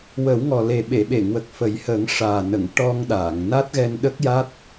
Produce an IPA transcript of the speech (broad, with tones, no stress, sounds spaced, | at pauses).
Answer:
w ə˨˩˦ w ŋ ɔ˨˩ l e˨˩ ɓ e˨˩˨ ɓ e˨˩˨ ŋ w ə˨˩ k̚ f ə˨˩˦ j h əː˨˩˦ ŋ ʂ aː˨˩ n ə˨˩˨ ŋ ʈ ɔ˧ ŋ ɗ aː˨˩˨ ŋ n a˦˥ t̚ ɣ ɛ˧ n ɗ ə˦˥ k̚ j a˦˥ t̚